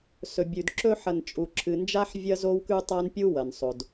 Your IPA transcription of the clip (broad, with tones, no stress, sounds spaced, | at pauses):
s ɵ˨ bʲ ʉ˨ d ǁ ɵ˦ ħ ɐ˨ n t͡ʃʼ u˨ ǁʰ ɨ˨ n d͡ʒ a˦ ħ vʲ ɐ˦ z o˦ w k ʉ˦ tˤ a˦ n pʲ u˦ w ɐ˨ n sˤ o˨ d